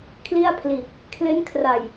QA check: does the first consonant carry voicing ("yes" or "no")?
no